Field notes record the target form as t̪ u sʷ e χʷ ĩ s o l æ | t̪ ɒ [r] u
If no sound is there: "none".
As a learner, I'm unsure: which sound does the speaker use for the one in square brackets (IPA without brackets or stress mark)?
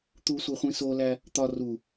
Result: r